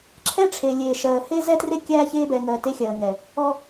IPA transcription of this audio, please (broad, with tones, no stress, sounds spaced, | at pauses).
ǁʰ ɛ˦ ʈ͡ʂʰ e˨ lʲ eː˨ ʃ ɜː˨ h e˦ z ɛ˦ t r e˦ kʲ æː˦ ç eː˦ b ɛː˨ ŋ ɜː˨ t e˦ xʲ ɜː˨ ŋ ɛ˨ | ɔ˦